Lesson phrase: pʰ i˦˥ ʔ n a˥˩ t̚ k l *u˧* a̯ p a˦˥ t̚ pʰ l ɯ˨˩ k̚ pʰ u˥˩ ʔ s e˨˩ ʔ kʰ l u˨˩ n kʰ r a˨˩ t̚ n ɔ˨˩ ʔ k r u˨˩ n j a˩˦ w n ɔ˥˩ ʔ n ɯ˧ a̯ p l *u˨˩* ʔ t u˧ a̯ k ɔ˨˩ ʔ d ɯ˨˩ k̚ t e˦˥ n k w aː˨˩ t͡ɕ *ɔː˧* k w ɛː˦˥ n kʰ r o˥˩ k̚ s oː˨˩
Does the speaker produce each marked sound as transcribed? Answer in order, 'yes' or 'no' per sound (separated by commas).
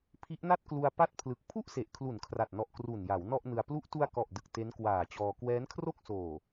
yes, no, yes